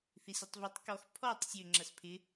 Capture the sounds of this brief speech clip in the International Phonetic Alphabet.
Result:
θ i s i tˤ v ɵ tˤ k ɔ x pʰ ɔ tˤ sʲ ø ŋ͡ǁ ɐ s pʰ ɪ

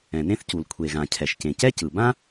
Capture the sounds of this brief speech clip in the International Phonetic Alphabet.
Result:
ɛ̃˩ n ẽ˥ θ c u˩ l kʷʰ e˩ ɣ ã˩ cʰ ɛ˩ ʃ c ẽ˩ c ɛ˥ c ɯ˩ b ã˥

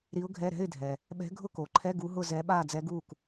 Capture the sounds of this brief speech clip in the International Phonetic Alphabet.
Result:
ɾ i˧˥ ʊ̯ ɡʱ ɛ˧˥˧ ɾ ɛ̤˧˥˧ ɪ̯ dʱ ɛ˨ | ɓ ɛ̤˧˥ ɡʱ ʊ˥˨ k o˨ ǃʰ ɛ˧˥˧ ɡ u˧˥ ɦ ʊ˥˨ z ɛ˧˥ ɓ a˥˨ d͡z ɛ˧˥ ɡ u˥˨ k

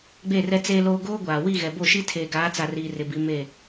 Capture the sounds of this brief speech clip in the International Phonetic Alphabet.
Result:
ɡ͡b e˦˨ r ɛ˦ t͡s eː˦ l oː˦ ɡ oː˦ ɡʷ aː˨ w i˦˨ ɣ ɛ˨ b o˦˨ ʃ i˦ tʰ eː˨ ɡ aː˨˦ t͡s a˨ r iː˨ r ɪ˨ b i˨˦ m e˦˨

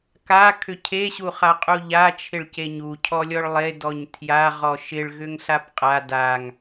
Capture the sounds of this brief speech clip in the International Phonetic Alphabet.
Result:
k a kʰ ʏ cʰ e ɕ u χ a qʼ u ʎ a t͡ʃʰ ɪ ɭ c e ɲ u cʰ ɔ lʲ ɔ ɭ lˠ e d ɔ ɲ tʰ j a ʁ ɔ ʃ ɪ ɭ ɣ ʏ ŋ ɬ a p qʼ a d a ŋ

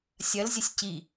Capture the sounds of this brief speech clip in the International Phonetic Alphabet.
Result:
sʲ ɐ l zʲ ə sʲ c i

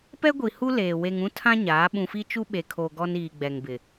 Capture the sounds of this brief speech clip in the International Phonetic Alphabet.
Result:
p ɛ˦ ɡʷ i˨ h u˦ l eː˨ w e˨ ŋ ũ˦ tʰ ã˦ ɲ aː˨˦ ɓ ũ˨ f i˦ t͡ʃ u˦ ɓ e˨ kʰ oː˨ ɡ ɔ˦ n iː˨ ɡ͡b ɛ˨ ŋ b ɪ˨

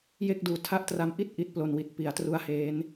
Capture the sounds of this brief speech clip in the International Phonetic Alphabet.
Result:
j e˥˩ k̚ d uː˨˩ tʰ a˦˥ ʔ t r a˧ m ʔ i˥˩ t̚ ʔ i˦˥ t̚ p l o˧ n w i˨˩ t̚ p i˩˦ a̯ t r u˦˥ a̯ h eː˦˥ n

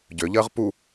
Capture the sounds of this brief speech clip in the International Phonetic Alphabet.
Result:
ɟ ø ʎ əː ʁ p u

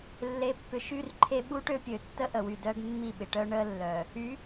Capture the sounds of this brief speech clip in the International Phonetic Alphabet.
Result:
lː e˨ pː ʏ˨ ʃ y˦ r ǃʰ e˦ ɓ u˦ ʈ ø˦ pʲ ø˨ tː ə˦ ʔ ə˨ w y˨ d œ˦ ɡ mː i˦˨ ɓ ɪ˨ ʈ œ˦ ɳ ə˦ lː œ˨ | y˨˦

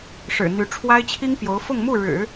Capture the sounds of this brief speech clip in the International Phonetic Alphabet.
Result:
ʂ ɻ̩˨˩ n̪ y˧˥ ʈ͡ʂʰ w a˥ ɪ̯ t͡ɕʰ i˥ ŋ p j o˧˥ ʊ̯ f ʊ˥˧ ŋ m u˥˩ ɻ ɻ̩˨˩˦

